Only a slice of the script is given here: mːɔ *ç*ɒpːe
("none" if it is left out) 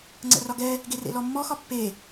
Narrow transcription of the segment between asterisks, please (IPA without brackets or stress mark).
x